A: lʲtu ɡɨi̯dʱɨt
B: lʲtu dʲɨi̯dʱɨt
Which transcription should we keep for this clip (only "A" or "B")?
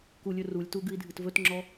A